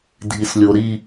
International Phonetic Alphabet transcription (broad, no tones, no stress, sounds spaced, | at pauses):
dʱ i s lʲ o ɾ i